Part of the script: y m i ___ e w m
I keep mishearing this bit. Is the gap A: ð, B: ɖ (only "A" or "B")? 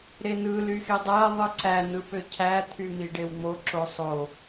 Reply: B